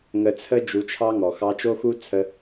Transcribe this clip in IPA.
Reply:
ŋ ə˧ t͡sʰ ə˦ d͡ʒ u˧ t͡ʃʰ ɑ˦ ŋ ɔ˨ x ɑ˧ t͡ʃ o˦ x u˦ t͡sʰ ə˧

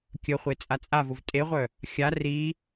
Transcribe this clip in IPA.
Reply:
kʲ ə χʷ e t͡sʼ a t͡sʼ a v ʊ v tʼ e ʁʷ œ | xʲ a r i

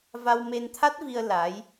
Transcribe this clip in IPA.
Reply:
v a˧ w m e˧ n t̪ʰ a˦˥ t̚ v i˧ ə̯ l a˧˥ j

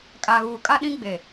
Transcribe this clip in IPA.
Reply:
kʼ a˨ ɣ uː˨ kʼ a˦ ɗ ĩ˦ ɡ͡b e˨

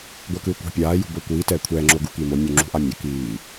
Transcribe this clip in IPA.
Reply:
ɡʷ e k ɯː kʷ a̤ pʲ aː j ṳ b o kʷ iː t ɛː kʷʰ ɛː ŋ͡ǁ o ɡ u k iː m o mʲ u ŋ͡ǁ ṳ ʔ a mʲ ɛ k iː

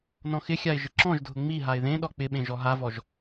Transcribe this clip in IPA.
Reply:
n ɔ̃ x ɪ xʲ a ɪ̯ ʒ ɪ ǁ ɔ̃ ʒ dʱ ʊ ŋ͡m i ɦ a ɪ̯ ð ẽ ɗ ɔ k͡p ɪ ɓ ẽ ʒ ɔ ɦ a v ɔ ʒ

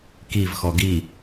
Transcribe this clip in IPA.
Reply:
k i v x ɔ ɡ i

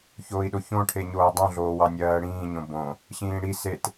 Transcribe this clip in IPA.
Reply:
ç oː i̯ ɗ o ç õ ʈʰ e ɲ oː dˤ õ ɮ oː w ɑ nʲ ɜː ɽ ĩː ɲ õ b õ | ɕ ĩː ɽ i s e t

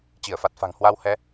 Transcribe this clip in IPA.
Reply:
t͡ɕ i˧˩ ə̯ f a˨˩ t̚ f a̤˨˩ ŋ h w a˧ w h ɛ˧

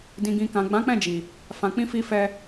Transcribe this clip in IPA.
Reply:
d ĩ˨ ɡ ĩ˨ k ã˨ ɡ͡b ã˨˦ k͡p ɛ̃˦˨ d͡ʒ i˨ | f ã˨ k͡p ĩ˧ f i˧ f ɛ˧

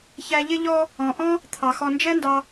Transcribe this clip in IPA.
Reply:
ç æ˨ ʎ ɪ˦ ʎ ɔ˦ | ɔ̃˩ ʔ ɔ̃˥ | t̪ʰ ɑ˩ x ɔ˨ n d͡ʒ ɛ˥ n d ɑ˨

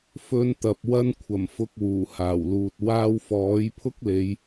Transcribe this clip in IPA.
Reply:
f ɵ˧ n t̪ ɐ˨ p̚ w ɐ˧ n kʷʰ ɐ˨˩ m f ʊ˨ k̚ w uː˨˩ h aː˨˩ w l uː˨ t̚ w aː˧ w f ɔː˨˥ j pʰ ʊ˥ k̚ l e˨˧ j

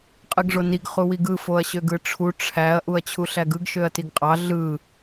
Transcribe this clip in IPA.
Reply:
qʼ ɯ ɡ ʐ o n i ɡ χ u w i ɡ ɯ f o ɐ̯ ɕ ø ɡ ɯ ʈ͡ʂʰ u ʈ͡ʂʰ æ ɐ̯ ʔ u ɐ̯ t͡ɕʰ u ɬ æ ɡ ɯ ɡ ʃ ø ɐ̯ t i ɡ qʼ ɑ ɮ ɯ

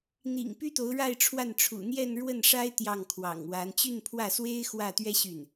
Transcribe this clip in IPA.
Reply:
n̪ ḭ˨˩ ŋ p y˥ t̪ o˧˥ ʊ̯ ɻ a˥˧ ɪ̯ ʈ͡ʂʰ w a˥˩ n ʈ͡ʂʰ ṵ˨˩ n̪ j ɛ˥˧ n ɻ w ə˥˩ n ʂ a˥ ɪ̯ t̪ j ɑ˥˩ ŋ kʰ w ɑ̰˨˩ ŋ w a˧˥ n t͡ɕ y˥˧ n pʰ w ä˥˩ s w e˥ ɪ̯ x w ä˥˩ t̪ ɥ ɛ˥ ɕ y˥˩ n

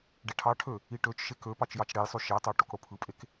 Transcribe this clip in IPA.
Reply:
ɖ e ʈʰ ɑ ʈʰ ø | i ʈ ø t͡ʃ ʃ e k ø p ɑ t͡ʃ j ɑ t͡ʃ ɽ e j sˤ y ʃ ɑ t ɑ ʈ o k ɽ o pʰ ɯ pʼ e k

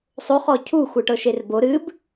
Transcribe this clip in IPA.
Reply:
sˤ o χ ɔ cʰ u xʷ ɨ ʈ ɤ ʃ e r b o ɾ ɨ b

